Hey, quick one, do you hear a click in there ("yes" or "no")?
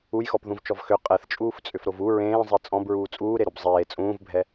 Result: no